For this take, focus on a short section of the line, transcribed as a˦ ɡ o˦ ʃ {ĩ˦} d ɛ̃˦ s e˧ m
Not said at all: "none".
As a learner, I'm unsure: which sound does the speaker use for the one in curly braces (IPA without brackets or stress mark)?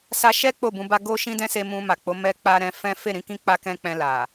ĩ˦